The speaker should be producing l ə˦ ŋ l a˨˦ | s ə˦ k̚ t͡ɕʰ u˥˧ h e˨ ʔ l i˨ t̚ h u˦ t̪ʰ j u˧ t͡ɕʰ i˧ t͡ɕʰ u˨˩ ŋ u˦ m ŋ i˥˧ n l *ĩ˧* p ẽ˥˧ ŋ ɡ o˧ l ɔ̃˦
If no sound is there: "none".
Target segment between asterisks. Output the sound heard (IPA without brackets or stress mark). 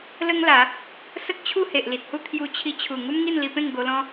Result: i˧